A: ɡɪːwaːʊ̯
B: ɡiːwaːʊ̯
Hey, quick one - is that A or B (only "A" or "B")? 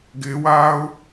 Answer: A